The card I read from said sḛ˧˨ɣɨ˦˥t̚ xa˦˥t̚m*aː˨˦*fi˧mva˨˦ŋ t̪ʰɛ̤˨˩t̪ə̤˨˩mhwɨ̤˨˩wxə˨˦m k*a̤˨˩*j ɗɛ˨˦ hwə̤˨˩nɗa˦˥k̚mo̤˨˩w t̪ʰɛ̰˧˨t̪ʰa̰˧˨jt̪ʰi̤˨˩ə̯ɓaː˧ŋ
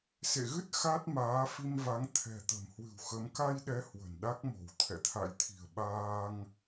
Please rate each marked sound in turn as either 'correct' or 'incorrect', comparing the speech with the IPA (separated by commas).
correct, incorrect